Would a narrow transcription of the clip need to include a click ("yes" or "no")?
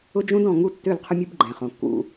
yes